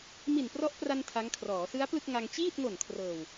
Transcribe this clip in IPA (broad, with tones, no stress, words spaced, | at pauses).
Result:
mi˨˩nprɔ˦˥ʔpra˧n tʰa˦˥ŋkʰrɔː˩˦ sɯ˦˥a̯plɯ˥˩k̚ŋa˧ŋ t͡ɕiː˥˩t̚ŋo˨˩n kʰrɤː˨˩w